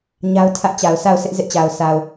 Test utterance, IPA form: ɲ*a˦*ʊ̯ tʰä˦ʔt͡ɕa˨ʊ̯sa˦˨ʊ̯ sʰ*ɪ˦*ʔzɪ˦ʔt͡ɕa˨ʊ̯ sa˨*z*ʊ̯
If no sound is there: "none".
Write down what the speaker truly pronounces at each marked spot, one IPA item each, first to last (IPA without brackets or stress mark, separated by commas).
a˦, ɪ˦, none